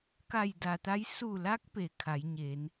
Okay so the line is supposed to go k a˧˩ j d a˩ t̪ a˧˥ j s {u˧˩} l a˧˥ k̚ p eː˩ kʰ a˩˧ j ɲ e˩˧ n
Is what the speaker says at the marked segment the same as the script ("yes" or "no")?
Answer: yes